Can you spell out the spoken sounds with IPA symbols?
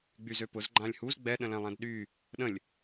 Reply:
ɡ͡byzøpʊz ɡ͡ǃãlʲhuz ɡ͡bɛ ɗə̃lɛ̃lˠæ̃dɗy | ɗə̃lʲ

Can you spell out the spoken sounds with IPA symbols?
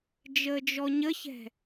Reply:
d͡ʒəːd͡ʒɔɲəçɛ̤

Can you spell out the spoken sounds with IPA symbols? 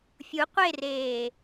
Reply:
fʲu qʷereː

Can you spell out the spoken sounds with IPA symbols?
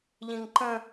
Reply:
ʎĩŋǃə̃

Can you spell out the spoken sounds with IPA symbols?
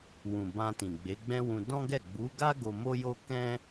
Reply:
wũ˨bã˧ tĩ˨ɡ͡be˨˦ɡ͡bɛ̃˦wũ˧ dɔ̃˦ɡɛ˦˨ ɡ͡bu˨˦ɡa˦ ɡo˧mo˦jo˦ kɛ̃˦

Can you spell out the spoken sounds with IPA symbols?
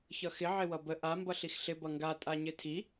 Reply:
çʌxɪ ʕɪwʌbə ʔa mbʌɬixɬɪ bʌŋɡa tʼaɲɪtʰi

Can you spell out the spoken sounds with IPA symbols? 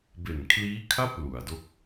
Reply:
be˨˩nkʰliː˦˥kʰa˥˩p̚ lu˩˦a̯do˦˥k̚

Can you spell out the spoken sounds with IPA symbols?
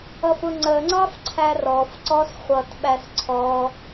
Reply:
ʌfʊŋ͡ǀəŋ͡ǀɑf ǀʰærɔfǀɔs χʷʌtɓæs ǀʰɔ

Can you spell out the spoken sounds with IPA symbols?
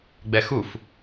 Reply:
ɡ͡bɛxuf

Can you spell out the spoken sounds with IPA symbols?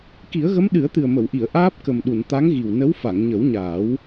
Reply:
ki˨˩˦ə̯ɣə˧˥m ɗɨ˨˩˦ə̯t̪ɨ˨˩ə̯mə˨˩˨wʔi˨˩˨ə̯ ʔaː˦˥p̚kə˨˩mɗu˨˩˨n t̪a˧˥ŋɣi˨˩wnə˧˥w fa˨˩˨ŋɲə˨˩˦wɲaː˨˩˦w

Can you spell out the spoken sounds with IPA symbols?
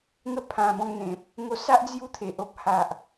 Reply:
ŋə˦pʰã˧bɔ̃˧ŋn̪ẽ˨p̚ | ŋo˧sa˦ʔ d͡zju˥˧t̪ʰe˨ʔ o˦p̚ha˨ʔ

